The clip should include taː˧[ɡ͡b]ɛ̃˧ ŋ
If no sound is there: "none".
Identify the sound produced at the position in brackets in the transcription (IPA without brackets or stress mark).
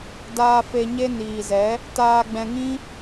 ɡ͡b